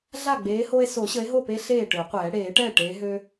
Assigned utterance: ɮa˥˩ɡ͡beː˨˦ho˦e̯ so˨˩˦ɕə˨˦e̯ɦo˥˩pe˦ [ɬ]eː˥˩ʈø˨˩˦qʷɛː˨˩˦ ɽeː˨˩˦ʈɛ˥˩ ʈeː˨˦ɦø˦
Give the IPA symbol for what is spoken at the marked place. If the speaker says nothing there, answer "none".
ɬ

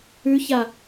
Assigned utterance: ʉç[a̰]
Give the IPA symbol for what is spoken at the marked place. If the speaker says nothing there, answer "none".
a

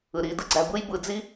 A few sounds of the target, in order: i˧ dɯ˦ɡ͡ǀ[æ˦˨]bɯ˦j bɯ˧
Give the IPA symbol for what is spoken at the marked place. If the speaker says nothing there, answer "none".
æ˧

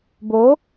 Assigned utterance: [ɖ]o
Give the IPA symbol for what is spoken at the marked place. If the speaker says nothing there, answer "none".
b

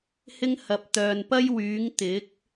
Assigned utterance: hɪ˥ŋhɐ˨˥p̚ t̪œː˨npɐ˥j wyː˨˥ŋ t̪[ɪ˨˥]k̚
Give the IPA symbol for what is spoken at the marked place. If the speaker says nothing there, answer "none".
ɪ˨˥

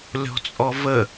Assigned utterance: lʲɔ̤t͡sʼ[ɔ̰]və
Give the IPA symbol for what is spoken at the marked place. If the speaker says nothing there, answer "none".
ɔ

